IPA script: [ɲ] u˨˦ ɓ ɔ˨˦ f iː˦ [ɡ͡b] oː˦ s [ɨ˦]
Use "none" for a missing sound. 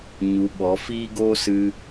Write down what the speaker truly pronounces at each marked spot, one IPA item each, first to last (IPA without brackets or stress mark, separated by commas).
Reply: ɲ, ɡ, ɨ˦